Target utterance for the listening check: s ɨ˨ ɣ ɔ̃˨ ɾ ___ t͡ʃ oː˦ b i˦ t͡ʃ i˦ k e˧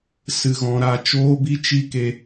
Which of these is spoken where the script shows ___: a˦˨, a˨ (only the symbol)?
a˦˨